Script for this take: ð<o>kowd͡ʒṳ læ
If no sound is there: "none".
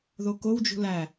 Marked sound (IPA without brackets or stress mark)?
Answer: o